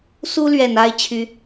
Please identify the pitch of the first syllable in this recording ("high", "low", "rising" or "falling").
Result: high